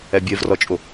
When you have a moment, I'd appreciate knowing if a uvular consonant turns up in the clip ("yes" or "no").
no